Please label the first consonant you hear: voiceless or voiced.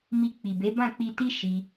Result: voiced